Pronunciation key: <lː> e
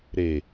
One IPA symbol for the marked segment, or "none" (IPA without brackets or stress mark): ɾ